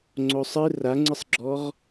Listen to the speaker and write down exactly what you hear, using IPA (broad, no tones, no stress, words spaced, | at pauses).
ŋ͡ǀosˤɨ raŋ͡ǀɨsˤɡ͡ǁɔʁ